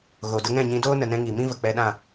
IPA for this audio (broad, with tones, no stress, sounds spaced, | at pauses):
ɣ o˨ d ə˧ ŋ ɛ̃˦˨ ɲ ĩ˧ d oː˦ n ə˨ n ɛ̃˧ ŋ i˨ m ĩ˦ v ə˨ k͡p ɛ˧ ɗ ã˦˨